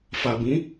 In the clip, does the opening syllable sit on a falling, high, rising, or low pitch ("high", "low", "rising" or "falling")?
low